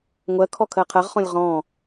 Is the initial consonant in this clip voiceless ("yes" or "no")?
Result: no